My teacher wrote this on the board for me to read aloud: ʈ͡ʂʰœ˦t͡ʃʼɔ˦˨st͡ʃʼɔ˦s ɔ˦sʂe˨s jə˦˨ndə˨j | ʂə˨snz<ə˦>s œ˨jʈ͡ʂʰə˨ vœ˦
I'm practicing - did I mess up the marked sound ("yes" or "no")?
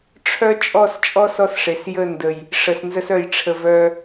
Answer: no